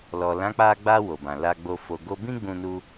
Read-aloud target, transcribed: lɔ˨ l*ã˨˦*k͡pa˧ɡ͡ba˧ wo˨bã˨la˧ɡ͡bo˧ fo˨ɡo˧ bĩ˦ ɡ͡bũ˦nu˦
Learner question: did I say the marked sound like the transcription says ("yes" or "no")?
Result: yes